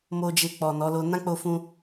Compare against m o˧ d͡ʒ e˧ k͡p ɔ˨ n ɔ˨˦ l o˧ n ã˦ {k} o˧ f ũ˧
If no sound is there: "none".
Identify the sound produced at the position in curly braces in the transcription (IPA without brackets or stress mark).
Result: k͡p